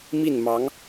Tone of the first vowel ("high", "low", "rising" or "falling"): falling